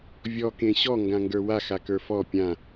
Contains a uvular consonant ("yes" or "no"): no